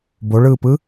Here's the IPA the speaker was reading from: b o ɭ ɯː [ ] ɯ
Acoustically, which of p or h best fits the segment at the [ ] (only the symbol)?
p